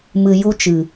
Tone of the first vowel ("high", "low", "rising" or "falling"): low